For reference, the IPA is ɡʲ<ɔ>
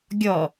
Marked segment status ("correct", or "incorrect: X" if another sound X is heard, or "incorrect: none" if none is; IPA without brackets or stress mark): correct